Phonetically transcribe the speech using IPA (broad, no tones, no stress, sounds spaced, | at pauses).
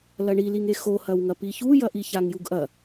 l ɐ ɳ i l i ŋ e x o h ɐ w ŋ ɐ p i ç u j ɐ ʔ i ç a ŋ j u ɡ ʔ ɐ